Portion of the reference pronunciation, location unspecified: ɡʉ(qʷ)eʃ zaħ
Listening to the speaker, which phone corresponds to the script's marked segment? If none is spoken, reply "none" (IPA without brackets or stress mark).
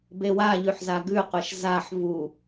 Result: qʷ